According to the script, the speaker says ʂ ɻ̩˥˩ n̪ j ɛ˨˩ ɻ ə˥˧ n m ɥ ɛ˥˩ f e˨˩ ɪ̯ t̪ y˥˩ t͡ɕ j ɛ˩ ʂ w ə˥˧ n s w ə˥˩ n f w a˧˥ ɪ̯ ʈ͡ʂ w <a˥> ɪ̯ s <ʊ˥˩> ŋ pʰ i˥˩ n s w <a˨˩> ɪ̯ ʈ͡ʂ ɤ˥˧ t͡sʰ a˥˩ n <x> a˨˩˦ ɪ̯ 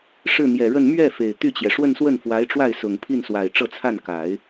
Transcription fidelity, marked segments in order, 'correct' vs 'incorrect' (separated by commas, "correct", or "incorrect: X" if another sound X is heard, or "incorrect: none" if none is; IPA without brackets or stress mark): incorrect: a˥˩, incorrect: ʊ˨˩, correct, incorrect: k